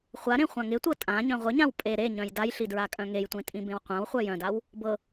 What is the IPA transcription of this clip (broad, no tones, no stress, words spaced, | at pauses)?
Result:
χʷaɾẽ χʷãŋɪtʷɤ tʼã ɲœ̃ʁʷɪɲãw pʼe ɾeɲœ̃j dajɬi dɹakʼœ̃ŋejtʷẽ tʼĩbẽwqʷãwχʷœ jœ̃daw | bɤ